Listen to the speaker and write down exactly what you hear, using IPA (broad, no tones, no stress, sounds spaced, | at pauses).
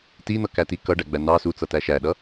t i n̪ ʌ k æ t i k ʌ ɖ æ ɡ͡b æ n ɑ s u t͡s ʌ t æ ʃ æ ɗ ʌ